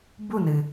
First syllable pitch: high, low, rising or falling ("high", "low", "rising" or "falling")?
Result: falling